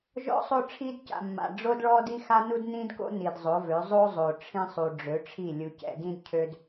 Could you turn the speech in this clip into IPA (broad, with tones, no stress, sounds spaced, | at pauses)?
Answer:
ʒ ɔ̰˦ sˤ o˦ ʈ͡ʂʰ i˦ d c a̰˨ mː a̰˨ ɖ͡ʐ o˦ d ɭ ɔ˦ d i˦ x a˦ n u˦ d n ĩ˦ d k o̰˦ n i˨ d zˤ o˨˦ v ø˨˦ zˤ o˦ zˤ o˨ ʈ͡ʂʰ ĩ˦ sˤ u˨ ɖ͡ʐ ø˨˦ ʈ͡ʂʰ i˦˨ lʲ u˨ c ɛ̰˨ d ĩ˦ d cʰ ø˦ d